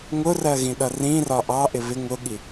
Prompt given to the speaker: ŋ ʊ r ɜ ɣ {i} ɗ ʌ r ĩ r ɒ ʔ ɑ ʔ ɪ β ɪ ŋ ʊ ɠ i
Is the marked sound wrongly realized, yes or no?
yes